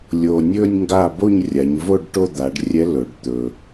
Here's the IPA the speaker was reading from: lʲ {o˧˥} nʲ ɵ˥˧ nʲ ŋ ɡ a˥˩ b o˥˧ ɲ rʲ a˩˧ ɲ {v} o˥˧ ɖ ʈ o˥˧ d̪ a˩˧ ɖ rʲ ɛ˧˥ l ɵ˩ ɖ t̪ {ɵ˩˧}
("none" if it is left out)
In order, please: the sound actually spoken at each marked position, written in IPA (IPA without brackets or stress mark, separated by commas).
o˩, v, ɵ˩